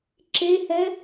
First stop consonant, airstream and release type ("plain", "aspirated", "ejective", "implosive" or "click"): click